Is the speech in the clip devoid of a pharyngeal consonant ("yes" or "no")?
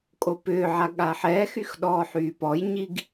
no